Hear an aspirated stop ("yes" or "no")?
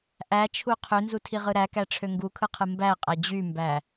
yes